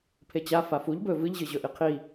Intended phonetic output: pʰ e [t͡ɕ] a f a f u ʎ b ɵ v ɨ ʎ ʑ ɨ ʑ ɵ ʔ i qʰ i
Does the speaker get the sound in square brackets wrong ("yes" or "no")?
no